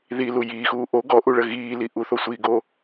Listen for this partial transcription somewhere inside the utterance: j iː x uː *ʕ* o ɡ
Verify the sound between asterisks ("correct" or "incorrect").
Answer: incorrect